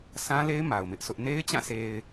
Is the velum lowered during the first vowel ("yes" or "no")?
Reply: yes